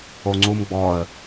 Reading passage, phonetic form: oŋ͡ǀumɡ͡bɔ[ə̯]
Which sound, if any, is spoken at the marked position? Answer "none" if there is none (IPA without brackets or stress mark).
ə̯